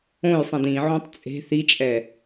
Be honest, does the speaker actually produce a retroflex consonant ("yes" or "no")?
no